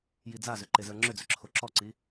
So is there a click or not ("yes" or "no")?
yes